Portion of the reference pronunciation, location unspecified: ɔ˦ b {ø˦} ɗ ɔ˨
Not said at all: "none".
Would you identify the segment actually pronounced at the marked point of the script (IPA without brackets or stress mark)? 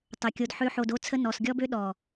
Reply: ø˦